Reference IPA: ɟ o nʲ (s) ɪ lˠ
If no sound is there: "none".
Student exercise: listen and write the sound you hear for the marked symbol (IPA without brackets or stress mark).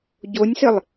s